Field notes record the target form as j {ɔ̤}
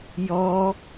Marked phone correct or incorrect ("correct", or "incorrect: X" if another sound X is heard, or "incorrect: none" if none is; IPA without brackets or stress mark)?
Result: incorrect: ɔ